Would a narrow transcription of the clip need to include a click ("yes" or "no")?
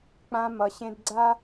yes